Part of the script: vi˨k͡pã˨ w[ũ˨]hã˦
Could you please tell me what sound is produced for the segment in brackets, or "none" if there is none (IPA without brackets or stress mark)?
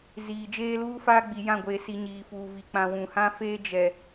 ũ˨